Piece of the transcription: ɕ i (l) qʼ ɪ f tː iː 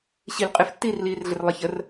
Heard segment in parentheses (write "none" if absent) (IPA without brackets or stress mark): l